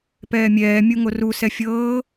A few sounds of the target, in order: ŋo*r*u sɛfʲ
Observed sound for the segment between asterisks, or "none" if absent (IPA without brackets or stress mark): r